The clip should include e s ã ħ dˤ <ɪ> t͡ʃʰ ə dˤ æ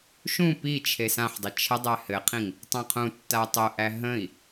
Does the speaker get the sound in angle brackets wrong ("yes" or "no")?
no